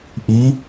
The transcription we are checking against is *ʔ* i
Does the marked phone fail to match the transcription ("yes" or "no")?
no